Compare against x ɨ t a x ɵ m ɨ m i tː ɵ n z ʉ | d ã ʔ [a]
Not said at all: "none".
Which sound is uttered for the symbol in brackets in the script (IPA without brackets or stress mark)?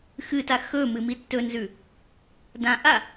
a